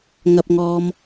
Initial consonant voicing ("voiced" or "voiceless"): voiced